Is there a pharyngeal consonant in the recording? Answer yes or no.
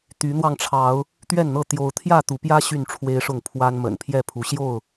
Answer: no